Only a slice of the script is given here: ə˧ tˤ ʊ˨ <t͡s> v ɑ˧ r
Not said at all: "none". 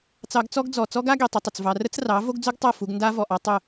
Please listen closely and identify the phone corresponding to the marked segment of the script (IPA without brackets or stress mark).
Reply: t͡s